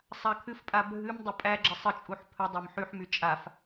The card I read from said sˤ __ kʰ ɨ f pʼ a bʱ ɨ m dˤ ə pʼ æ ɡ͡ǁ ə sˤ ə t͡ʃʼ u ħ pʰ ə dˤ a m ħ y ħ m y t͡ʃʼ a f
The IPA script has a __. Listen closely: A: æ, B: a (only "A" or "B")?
B